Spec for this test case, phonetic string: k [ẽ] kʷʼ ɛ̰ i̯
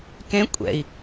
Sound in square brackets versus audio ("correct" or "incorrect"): correct